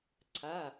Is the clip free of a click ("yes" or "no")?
no